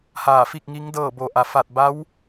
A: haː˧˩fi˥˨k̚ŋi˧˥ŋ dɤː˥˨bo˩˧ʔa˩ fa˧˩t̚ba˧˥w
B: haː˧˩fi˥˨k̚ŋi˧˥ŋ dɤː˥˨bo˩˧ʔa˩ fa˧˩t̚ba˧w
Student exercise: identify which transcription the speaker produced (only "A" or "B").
A